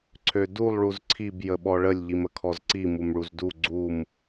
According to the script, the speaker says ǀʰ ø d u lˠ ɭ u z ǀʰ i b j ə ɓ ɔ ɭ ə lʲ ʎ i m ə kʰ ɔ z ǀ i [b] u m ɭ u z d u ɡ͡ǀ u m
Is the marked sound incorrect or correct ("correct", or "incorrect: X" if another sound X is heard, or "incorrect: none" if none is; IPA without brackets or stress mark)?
incorrect: m